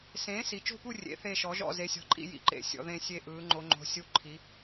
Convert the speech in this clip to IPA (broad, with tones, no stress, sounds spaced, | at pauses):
s ẽː˩˥ s i˩˧ t͡ʃ o̤˦˨ p u˦˨ rʲ ḛ˩˥ θ e˦˨ ʃ ɔ˩˥ ʒ ɔ̰˦˨ z e˩˥ sʲ ɔ̤˩˥ ǃʼ ḭ˦˨ j ḭ˩˥ ǃ ḛ˩˥ sʲ ɔ̰˩˧ ð ẽ˦˨ sʲ e˦˨ ʔ ɯː˩˧ ŋ͡ǃ o˩˧ ŋ͡ǃ o̤˩˥ sʲ u˦˨ ǃʰ i˩˥